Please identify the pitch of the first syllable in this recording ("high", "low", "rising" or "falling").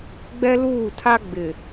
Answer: high